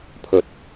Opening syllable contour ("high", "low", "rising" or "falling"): rising